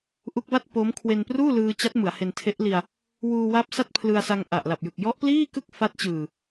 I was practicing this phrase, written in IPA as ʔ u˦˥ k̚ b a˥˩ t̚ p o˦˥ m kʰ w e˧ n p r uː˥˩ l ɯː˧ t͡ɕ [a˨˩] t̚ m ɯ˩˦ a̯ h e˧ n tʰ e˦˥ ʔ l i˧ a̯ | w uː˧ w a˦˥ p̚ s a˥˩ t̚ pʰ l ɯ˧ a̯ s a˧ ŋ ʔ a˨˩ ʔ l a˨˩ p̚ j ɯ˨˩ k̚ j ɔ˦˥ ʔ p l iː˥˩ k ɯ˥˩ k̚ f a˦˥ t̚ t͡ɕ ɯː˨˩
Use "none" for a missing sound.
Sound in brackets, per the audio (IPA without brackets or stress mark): a˦˥